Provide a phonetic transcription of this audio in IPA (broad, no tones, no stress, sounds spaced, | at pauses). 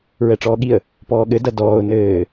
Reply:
ɹ ɛ ʈ͡ʂ ɔː ɠ i ə̯ | p ɔː ɠ ɘ d ɐ d ɔː ʊ̯ n ɘː